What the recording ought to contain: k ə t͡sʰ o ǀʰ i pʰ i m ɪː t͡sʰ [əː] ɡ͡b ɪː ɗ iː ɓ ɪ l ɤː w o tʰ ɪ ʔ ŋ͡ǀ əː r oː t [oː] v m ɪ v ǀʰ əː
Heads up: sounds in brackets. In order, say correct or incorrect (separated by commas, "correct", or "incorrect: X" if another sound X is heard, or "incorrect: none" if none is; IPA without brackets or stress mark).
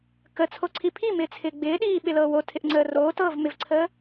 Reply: incorrect: ɪː, incorrect: ɤː